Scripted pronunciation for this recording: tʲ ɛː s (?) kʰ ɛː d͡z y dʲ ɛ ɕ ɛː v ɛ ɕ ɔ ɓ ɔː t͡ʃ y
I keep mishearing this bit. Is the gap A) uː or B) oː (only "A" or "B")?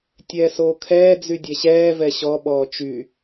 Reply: B